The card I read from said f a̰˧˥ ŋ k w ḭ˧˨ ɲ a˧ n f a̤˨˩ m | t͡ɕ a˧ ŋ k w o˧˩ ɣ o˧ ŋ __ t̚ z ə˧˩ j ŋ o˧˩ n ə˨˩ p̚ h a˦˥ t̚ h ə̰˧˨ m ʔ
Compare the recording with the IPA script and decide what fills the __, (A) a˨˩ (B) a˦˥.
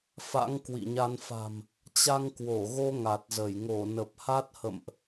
A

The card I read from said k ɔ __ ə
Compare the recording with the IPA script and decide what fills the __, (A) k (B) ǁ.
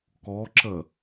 B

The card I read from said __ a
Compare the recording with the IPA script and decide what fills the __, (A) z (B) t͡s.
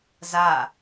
A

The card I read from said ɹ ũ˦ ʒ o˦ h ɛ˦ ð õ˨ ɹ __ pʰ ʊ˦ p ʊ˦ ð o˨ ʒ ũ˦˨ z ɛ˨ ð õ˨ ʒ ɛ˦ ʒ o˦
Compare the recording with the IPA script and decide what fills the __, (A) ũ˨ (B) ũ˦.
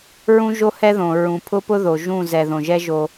A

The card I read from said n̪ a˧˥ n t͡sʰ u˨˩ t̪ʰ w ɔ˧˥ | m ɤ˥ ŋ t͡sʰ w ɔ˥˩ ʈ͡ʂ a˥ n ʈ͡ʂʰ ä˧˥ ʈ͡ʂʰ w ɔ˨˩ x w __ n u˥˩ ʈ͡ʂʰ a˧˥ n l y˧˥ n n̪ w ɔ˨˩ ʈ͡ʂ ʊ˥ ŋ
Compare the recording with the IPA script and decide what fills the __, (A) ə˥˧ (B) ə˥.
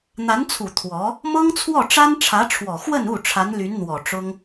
A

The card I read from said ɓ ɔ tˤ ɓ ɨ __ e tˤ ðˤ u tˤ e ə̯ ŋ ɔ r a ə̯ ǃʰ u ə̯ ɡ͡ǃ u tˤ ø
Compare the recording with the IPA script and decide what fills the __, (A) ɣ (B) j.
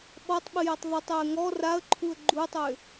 B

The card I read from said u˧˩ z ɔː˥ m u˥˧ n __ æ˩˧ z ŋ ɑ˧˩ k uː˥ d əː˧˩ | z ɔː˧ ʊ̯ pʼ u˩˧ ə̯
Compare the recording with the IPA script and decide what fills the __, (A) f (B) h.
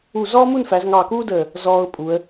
A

